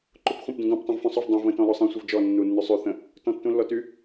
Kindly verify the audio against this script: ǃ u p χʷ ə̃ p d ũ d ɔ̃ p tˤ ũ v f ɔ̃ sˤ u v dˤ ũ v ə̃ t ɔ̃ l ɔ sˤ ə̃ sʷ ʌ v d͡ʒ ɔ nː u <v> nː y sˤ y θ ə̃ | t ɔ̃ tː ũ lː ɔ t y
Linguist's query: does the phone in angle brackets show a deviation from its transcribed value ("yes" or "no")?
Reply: yes